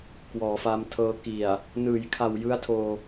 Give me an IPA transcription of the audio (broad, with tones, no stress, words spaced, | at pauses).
kwɔː˩˦fa˧mtʰɤː˧ki˨˩a̯ | nɯː˩˦jkʰa˨˩w jɯ˦˥a̯tʰoː˧